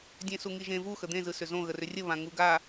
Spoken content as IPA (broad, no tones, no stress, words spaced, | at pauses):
dʲẽsuŋiʒẽ vu xəd̪ẽ zɯsʏzõ ɣərʏrʲə βãŋuɡa